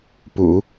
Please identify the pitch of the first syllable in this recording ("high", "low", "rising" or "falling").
low